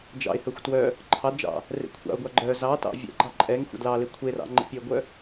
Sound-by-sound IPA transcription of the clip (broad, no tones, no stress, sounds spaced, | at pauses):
d͡ʒ ɑ̰ ɪ̯ h œ xʷ t w œ | ǃʰ ɑ d d͡ʒ ɑ̰ | r ḛ kʷʰ ɑ̰ ʊ̯ ɡʷ ɑ ɡ͡ǃ œ z ɑ t ɑ̰ vʲ ɛ̰ ɡ͡ǃ ɑ ǃʼ ɛ ŋ xʷ ɛ̰ d l ɑ l e kʷʰ e r ɑ̰ ŋ͡ǃ ḛ pʲ e ɡʷ œ